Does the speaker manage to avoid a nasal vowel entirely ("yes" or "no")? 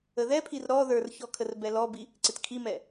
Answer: yes